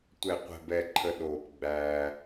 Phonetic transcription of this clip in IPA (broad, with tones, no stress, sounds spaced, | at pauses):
tʷ ɛ˨ qʷ ɛ̤˨ b ɛ˨ ǃʰ ə˨ ɗ oː˨ p ɡ͡b æː˦